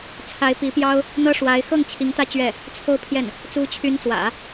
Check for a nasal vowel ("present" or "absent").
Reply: absent